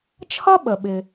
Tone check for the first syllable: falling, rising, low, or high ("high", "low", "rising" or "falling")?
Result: high